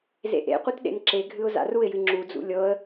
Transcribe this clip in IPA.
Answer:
z ḛ ʔ ḛ qʷ ɨ t ɗ ḛ n ǁ e ɡʱ ɨ ʊ̯ z a̰ r u ɪ̯ j ɨ ŋ͡ǁ u d͡z ṵ lʲ ɤ ə̯

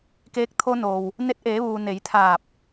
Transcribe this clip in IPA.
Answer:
k eː˧ k̚ t̪ʰ o˧ n oː˩ w | n e˧ t̚ ʔ eː˩˧ ʋ uː˩ n e˩˧ j t̪ʰ aː˧˩ p̚

